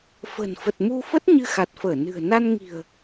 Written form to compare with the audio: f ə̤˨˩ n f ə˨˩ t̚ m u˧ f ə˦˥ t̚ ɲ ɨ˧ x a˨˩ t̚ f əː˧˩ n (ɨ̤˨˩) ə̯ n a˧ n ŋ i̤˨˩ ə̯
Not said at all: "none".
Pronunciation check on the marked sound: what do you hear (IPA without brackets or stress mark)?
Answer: ɨ̤˨˩